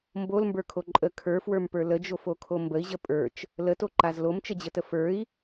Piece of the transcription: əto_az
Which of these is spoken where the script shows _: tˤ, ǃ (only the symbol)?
ǃ